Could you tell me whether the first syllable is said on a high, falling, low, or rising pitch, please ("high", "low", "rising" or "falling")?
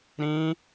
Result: high